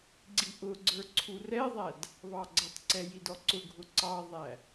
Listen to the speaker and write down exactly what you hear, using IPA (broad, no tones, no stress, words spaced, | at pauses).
ɡ͡ǀiʔʊɡ͡ǀə˞ ǀʰurɛðˤæd | βɑɡ͡ǀʌtˤǀɛ jidɔǀʊɡʱʊ ǀɑðˤæ